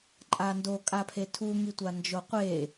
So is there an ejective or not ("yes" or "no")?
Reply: yes